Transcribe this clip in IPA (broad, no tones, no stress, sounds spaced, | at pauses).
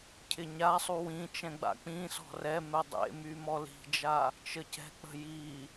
cʰ ɪ ɲ a sˤ u w ĩ t͡ʃ ɛ̃ ɡ͡b a̰ k͡p ĩ s ɔ̤ r ɛ m ɛ dˤ ḛ m y m ɔ l i̤ d͡ʒ a | t͡ʃ ə c ɛ̤ k͡p ə̤ j i